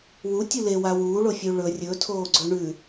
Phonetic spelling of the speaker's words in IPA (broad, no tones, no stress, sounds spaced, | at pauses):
w u tʲ u l e w a w uː ɭ o fʲ ʉ ɭ ɵ rʲ ɵ tʰ oː ɡ͡ǀ ɵ ɳ ʉ